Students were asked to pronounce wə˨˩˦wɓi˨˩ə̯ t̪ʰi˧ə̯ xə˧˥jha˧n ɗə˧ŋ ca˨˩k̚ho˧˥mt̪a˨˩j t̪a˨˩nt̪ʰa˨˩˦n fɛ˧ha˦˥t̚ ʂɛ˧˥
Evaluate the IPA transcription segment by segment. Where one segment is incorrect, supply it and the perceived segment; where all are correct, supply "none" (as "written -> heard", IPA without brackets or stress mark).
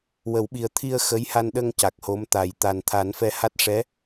none